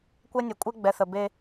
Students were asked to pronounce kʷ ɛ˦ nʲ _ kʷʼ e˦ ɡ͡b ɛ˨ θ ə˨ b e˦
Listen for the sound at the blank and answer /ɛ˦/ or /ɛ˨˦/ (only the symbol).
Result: ɛ˨˦